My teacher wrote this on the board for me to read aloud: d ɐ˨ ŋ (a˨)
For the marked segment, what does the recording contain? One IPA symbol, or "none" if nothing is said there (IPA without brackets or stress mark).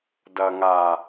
a˨